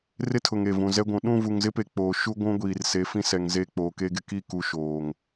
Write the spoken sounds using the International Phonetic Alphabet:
r ɪ˦ tʰ ʊ˨ ŋ e˨ v ũ˨ z ɛ˦ ɡʷ ũ˨˦ ɗ ũ˦˨ v u˨ ŋ z ɪ˦ p e˨ k͡p oː˨ ʃ u˦ ɡʷ ũ˦ ɡʷ iː˨ r s e˨˦ f ĩ˦ s ɛ˨ ŋ z e˦˨ k͡p oː˨ k e˦ ɡ ɪ˦ k i˦˨ k u˨ ʃ oː˨ ŋ

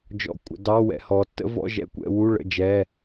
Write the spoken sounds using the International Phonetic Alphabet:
d͡ʒ ɔ̰˧˥˧ kʷʼ ə̰˩˧ d ɑ˧˥˧ w ɛ̰˩˧ h ɔ˩˧ tː ə̰˦˥ v ɔ̰˧˥˧ ʒ ɛ̰˦˥ kʷ ɛ̰˩˧ w u˧˥˧ ɭ ə̰˧˥˧ d͡ʒ ɛ˧˥˧

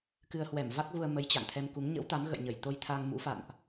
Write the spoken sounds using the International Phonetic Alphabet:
k ɨ˧ ə̯ h w ɛ˧˩ m v a˦˥ k̚ ɣ u˧ ə̯ m ə˨˦ j t͡ɕ a̰˧˨ ŋ t̪ʰ ɛ˧ m k u˨˦ ŋ ɲ ə̰˧˥ w t̪ a˨˦ m ɣ ə̰˧˨ j ɲ ə˧˩ j t̪ o˧ j t̪ʰ a˧ ŋ m ṵ˧˥ f a̰˧˨ n ʔ

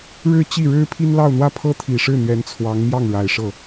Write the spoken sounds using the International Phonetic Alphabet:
ɻ ɻ̩˥˧ t͡ɕ i˥˩ ɻ ɻ̩˥ pʰ i˥ n l ɑ˥˧ ʊ̯ n̪ w ä˥˩ pʰ ɤ˥ t̪ʰ i˨˩ ʂ ɻ̩˥˩ n̪ ɥ ɛ˧˥ n t͡sʰ w ɑ˧˥ ŋ m j ɑ˥˩ ŋ ɻ a˨˩ ɪ̯ ʂ ɤ˥˩

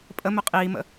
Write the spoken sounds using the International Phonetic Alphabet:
pʼ ə m ø qʼ iː m ə̰

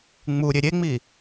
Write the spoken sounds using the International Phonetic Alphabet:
ŋ͡m u ɾʲ e ɾʲ e ŋ͡m i

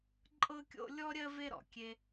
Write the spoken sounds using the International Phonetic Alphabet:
ǃʼ ɤ˥ kʲ o̰˥ lʲ ɔ˥ ɾʲ ɜ˥ v e˥ ɾ ɔ̰˩ kʲ e˥

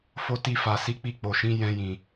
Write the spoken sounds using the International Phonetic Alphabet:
f o˧ t i˧ f a˨ s i˧ k͡p i˧ k͡p o˨ ʃ ĩ˨˦ j ɛ̃˧ j ĩ˨

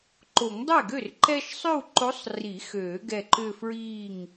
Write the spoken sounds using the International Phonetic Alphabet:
ǃ o˨˩˦ ŋ dˤ ɛ˥˩ ɡ ø˥˩ r ǃ ɛ˥ ʃ sˤ ʏ˥˧ w ǃ o˧˥ sˤ r i˨˩˦ x øː˨˩˦ ɡ ɛ˧˩ ǃ ʏ˥˧ f ɹ iː˥˩ ŋ

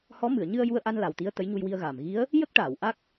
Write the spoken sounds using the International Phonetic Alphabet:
h ɔ˧˥ m ɨ˨˩˨ ə̯ ɲ ɨ˧ ə̯ j u˧ ə̯ ʔ a˧ n l a˨˩ w t̪ i˧˥ ə̯ t̪ ə˧˥ j ɲ u˧ j w i˧ ə̯ ɣ aː˨˩ m ɣ i˧˥ ə̯ | j ə˦˥ k̚ ʈ aː˨˩˨ w ʔ a˦˥ k̚

